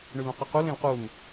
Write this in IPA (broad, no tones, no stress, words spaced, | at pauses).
ɳylõqəqul ẽlqun